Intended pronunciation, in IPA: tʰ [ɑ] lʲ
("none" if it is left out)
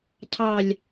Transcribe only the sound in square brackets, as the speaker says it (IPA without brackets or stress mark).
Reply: ɑ